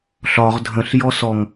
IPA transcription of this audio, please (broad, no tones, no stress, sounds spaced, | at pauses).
ɬ ɒ ʁ dʱ ə̃ ɬ j ɔ s ɔ ŋ